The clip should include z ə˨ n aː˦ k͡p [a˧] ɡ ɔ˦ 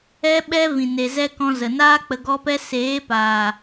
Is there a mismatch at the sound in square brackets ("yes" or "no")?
yes